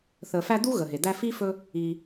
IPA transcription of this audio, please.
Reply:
θ ə˨ f æ˦ d̪ u˥ ɣ ə˩ ɦ e˩ d̪ æ˦ f i˥ f ɵ˦ | i˨

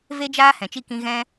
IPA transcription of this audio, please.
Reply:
v e˦ d͡ʒ aː˦ h ɛ̃˨ t͡ʃ i˧ k ĩ˧ ɣ ɛ̃˦

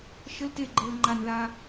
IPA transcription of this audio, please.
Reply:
ʃ ə l t e ɡ͡ǃ əː l ŋ͡ǃ a n ð aː

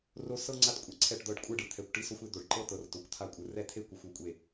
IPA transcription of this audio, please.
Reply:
r o˥ s ɤ˥ ŋ͡ǀ a˥ t kʷʼ a˨ ǀʰ ɛ˥˩ ʈ d̪ ɤ˥˩ ɖ kʷʼ ɯ˥˩ ɖ ɯ˨ t̪ʰ ɛ˨ kʷ ʈ i˥ s o˥ xʷ e˥ d̪ o˨ ɖ ǃ ɤ˥ t̪ ɤ˨ r t o˨ kʷ t̪ʰ a˥˩ kʷʼ ɯ˨ r ɛ˥ t̪ʰ e˥ kʷ ɯ˨ xʷ o˥˩ kʷʼ e˥˩

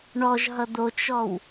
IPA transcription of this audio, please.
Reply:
ɳ ɔ ʒ ɦ ʌ d̪ o t͡ʃ ɔ w

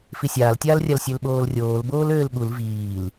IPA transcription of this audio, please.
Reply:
f i sʲ aː l tʲ aː l rʲ a l sʲ ø l ɓ oː l rʲ oː l b oː l øː l ɠ u l v iː l

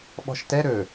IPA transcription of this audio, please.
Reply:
ɓ ɔ̤ ʃ t ɛ ɾ ɵ

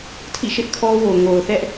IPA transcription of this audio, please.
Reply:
tʰ ḭ˦˨ ʃ ɪ˦ ʔ kʰ ɔ˦ w o˨ ŋ o˨ ʊ̯ θ ɛ˦ ʔ

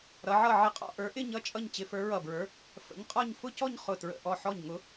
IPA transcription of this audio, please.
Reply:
ɾ ʌ˨˦ ʕ ʌ˥˧ ʕ ə˧˩ qʼ ɔ̰˥˧ ʔ ə˞˨˦ ʔ ɪ˥˧ ɲ ʌ˥˧ t͡ʃʼ ʌ˥˧ ɲ t͡ɕ ɪ˨˦ f ə˞˨˦ ɹ ʌ˧˩ b ɹ ə˞˨˦ | f ə̰˨˦ ɲ qʼ ɔ˥˧ ɲ f ʊ˥˧ c ɔ˥˧ ɲ χ ʊ˧˩ t ɹ ə̰˧˩ ʔ ɔ˧˩ ħ ɔ˧˩ ɲ ŋ ʊ˨˦

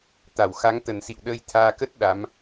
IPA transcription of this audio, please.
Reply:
t̪ a˧˩ w x a˨˦ ŋ t̪ ə˨˩ n s ḭ˧˨ w ɗ əː˧ j t̪ʰ aː˧ k ə˦˥ t̚ ɗ a˨˦ m

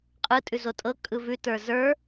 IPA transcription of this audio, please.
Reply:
qʼ ɯ tʼ ʉ z o tʼ ɤ kʼ ɯ v ʉ t ə˞ z ə˞

